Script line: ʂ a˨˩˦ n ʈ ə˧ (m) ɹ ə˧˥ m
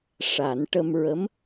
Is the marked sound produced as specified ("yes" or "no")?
yes